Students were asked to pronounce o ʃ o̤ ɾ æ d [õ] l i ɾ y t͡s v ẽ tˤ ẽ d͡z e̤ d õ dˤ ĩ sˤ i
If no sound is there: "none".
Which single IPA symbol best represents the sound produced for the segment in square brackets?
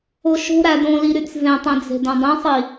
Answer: õ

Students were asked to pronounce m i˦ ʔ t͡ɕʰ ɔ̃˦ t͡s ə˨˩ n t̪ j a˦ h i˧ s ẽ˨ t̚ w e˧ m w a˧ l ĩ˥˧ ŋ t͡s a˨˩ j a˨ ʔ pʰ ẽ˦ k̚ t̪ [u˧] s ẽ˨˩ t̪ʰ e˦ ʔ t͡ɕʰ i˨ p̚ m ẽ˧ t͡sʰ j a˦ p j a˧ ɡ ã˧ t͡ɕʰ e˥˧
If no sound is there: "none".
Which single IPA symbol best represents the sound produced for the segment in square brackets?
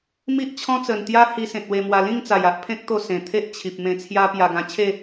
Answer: o˧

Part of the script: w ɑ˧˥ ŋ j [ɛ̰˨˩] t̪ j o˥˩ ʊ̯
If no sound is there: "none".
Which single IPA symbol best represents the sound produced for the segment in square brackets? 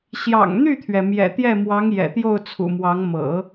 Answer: ɛ̰˨˩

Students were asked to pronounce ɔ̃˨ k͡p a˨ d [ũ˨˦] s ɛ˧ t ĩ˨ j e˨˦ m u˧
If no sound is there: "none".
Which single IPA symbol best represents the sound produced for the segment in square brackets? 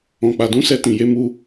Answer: ũ˧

